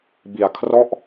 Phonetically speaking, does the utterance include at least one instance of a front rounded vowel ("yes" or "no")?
no